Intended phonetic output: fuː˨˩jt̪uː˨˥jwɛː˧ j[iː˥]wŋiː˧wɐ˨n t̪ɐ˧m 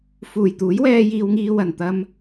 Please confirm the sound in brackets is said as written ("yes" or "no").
no